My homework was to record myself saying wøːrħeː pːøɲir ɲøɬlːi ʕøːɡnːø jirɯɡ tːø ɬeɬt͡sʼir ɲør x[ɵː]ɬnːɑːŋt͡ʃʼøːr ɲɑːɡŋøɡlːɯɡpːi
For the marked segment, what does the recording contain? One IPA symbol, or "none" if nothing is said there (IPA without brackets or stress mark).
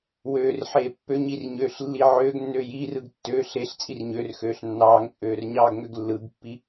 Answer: øː